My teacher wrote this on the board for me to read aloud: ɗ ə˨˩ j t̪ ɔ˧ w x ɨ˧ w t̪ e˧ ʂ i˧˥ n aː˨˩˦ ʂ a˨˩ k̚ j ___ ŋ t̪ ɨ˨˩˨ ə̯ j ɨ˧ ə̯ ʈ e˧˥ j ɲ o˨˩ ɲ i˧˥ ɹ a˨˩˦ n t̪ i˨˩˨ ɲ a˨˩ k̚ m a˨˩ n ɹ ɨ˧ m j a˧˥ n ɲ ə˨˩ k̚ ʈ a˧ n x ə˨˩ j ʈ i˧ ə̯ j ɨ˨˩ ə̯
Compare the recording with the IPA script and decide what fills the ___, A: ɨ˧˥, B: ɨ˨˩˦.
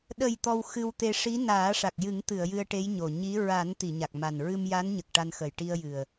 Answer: B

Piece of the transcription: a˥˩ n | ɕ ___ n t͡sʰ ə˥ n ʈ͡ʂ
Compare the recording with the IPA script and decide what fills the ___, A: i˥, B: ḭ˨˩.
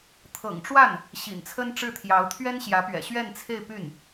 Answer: B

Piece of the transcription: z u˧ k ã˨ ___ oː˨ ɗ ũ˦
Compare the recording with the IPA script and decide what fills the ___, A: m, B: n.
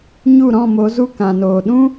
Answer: B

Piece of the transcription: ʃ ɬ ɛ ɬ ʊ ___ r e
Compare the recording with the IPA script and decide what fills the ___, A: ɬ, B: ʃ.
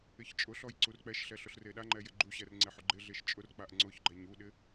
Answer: A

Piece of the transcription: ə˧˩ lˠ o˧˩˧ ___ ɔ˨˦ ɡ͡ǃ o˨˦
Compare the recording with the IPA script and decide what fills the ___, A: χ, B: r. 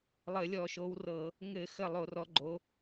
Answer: B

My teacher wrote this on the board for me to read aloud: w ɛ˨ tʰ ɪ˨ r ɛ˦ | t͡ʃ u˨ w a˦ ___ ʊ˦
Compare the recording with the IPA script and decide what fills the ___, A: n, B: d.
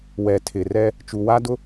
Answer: B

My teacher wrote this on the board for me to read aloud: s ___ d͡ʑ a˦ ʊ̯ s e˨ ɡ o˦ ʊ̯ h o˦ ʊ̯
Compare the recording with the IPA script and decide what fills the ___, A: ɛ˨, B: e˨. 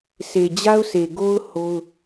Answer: B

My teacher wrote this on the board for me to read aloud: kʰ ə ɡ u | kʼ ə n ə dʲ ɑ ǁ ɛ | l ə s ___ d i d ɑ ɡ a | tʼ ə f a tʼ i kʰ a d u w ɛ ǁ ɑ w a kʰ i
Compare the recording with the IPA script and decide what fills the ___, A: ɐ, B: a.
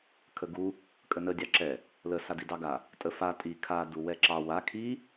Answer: B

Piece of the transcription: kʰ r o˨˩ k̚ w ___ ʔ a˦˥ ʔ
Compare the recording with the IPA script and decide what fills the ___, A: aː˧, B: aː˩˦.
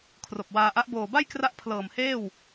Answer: A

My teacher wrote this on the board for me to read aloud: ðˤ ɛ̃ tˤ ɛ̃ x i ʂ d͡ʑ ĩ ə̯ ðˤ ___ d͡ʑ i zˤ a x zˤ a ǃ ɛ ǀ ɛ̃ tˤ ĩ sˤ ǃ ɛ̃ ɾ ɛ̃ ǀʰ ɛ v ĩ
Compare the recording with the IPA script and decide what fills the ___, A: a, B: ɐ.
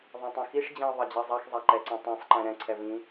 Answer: B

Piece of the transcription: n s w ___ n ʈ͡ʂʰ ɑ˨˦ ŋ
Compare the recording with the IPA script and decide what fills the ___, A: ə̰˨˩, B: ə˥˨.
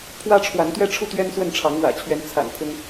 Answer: B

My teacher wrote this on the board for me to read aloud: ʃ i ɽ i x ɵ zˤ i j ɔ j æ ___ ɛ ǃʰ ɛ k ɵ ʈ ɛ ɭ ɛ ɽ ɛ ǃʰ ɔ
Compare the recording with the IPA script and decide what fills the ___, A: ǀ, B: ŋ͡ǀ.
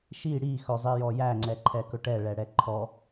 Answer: B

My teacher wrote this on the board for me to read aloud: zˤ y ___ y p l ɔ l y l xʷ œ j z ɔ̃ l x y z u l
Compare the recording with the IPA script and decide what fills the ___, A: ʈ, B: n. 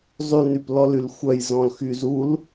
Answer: B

